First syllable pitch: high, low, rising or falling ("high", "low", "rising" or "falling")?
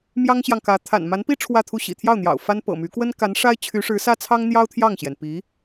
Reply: high